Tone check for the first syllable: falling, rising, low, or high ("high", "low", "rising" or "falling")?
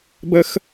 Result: high